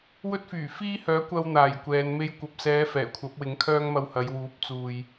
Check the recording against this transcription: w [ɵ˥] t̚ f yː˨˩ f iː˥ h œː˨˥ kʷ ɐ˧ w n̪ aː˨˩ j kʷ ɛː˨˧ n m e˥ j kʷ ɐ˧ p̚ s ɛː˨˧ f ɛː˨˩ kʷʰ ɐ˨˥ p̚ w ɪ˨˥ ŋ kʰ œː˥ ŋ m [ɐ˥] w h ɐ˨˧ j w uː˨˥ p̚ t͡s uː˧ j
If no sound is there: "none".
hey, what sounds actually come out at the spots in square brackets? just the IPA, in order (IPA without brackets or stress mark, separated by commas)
ɵ˥, ɐ˧